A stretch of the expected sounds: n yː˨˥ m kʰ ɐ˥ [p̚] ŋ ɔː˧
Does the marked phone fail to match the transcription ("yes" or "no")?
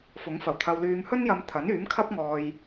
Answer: no